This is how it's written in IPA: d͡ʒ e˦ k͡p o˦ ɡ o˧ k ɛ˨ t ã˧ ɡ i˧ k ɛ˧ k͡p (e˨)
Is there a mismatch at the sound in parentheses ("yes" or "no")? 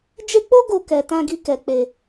yes